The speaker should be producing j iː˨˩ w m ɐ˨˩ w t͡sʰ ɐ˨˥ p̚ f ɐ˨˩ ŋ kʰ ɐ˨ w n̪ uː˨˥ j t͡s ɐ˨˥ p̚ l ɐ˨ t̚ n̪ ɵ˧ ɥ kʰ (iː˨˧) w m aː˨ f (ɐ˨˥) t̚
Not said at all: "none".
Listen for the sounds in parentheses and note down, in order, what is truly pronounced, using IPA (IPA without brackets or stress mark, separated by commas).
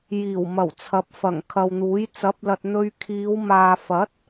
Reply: iː˨˧, ɐ˨˥